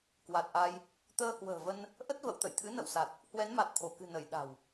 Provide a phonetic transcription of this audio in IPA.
kwa˨˩t̚ʔa˧j | t̪əː˧hwə̤ː˨˩və˧n | ʔə˦˥t̚və̰˧˨wt̪ə̰˧˨j t̪ʰɨ̰˧˥nə̰˧˨wsa˨˩t̚ | hwɛ˨˦nma˨˩t̚t̪ʰo˧˩kɨ̤˨˩ nə˧˩j ɗa̤˨˩w

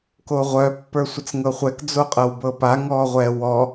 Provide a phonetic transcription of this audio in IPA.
koʁʷœ pːə˞sʷət͡sŋɤχʷɛk d͡zoqʼɤwbɤpa ŋɔːʁʷɛːwɔ

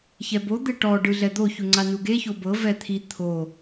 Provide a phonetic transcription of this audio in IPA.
çɛbo d̪eʈɔ ɖɯɮɛd̪o çuŋ͡ǀanuɡe çobɤ vɛt̪ʰi t̪ʰo

